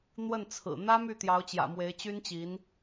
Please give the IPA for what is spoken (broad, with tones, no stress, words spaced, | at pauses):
n̪wə˥˩nt͡sʰɹ̩˨˩ n̪ä˥ my˥˩t̪jɑ˧˥ʊ̯t͡ɕjä̰˨˩ mwe˧˥ɪ̯t͡ɕy˥nt͡ɕi˧˥n